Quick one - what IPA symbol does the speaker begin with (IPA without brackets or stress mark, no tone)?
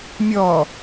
mʲ